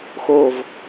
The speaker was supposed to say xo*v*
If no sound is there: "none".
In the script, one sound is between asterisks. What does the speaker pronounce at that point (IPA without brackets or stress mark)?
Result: v